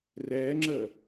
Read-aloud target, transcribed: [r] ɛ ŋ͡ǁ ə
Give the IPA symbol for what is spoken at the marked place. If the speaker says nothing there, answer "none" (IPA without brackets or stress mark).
r